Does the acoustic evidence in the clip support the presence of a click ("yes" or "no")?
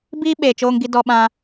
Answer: no